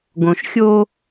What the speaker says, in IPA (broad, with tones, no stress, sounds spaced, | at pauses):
ɡ õ˨ ʃ xʲ o˦